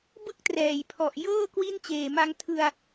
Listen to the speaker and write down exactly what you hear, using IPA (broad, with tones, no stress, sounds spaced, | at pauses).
b ɯ˥˩ k̚ t r ɛː˩˦ j pʰ ɔ˨˩ ʔ j ɤː˥˩ k w i˥˩ n t͡ɕ eː˨˩ m a˧ ŋ tʰ ɯ˧ a̯